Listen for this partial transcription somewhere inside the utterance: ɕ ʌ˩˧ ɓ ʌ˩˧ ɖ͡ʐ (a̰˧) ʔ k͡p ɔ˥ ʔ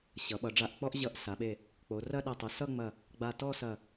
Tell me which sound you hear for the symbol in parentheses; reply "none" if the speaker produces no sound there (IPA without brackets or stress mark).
a˧